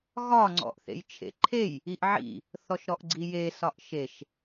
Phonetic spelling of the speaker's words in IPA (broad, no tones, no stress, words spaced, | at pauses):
ɣɒ ŋ͡ǀɔ̰ʔθḛjt͡ʃʰḛǃʰej | iʔʕḭ | θɔʃɾɔʔɡ͡ǀije sɒʔʃeʃ